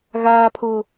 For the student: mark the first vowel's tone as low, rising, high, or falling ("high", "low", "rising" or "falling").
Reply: high